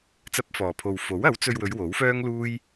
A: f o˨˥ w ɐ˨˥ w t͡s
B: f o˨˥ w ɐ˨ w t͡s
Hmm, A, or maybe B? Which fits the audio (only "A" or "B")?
A